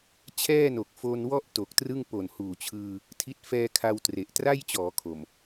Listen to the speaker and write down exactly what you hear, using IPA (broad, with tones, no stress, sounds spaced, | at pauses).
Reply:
t͡ɕʰ ɛː˥˩ n o˨˩ k̚ f o˧ n w ɔ˥˩ ʔ t o˨˩ k̚ t r ɯ˥˩ ŋ p o˨˩ n h uː˨˩ t͡ɕʰ ɯː˧ | tʰ i˦˥ t̚ f ɛː˧ kʰ a˧ w t r e˨˩ ʔ t r a˥˩ j t͡ɕ ɔː˩˦ kʰ o˨˩ m